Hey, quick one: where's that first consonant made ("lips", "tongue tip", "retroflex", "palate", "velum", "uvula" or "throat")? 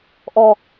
throat